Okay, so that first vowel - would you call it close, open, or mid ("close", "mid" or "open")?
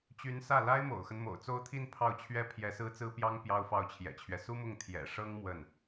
close